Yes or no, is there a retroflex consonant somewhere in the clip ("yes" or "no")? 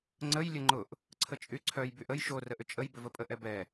no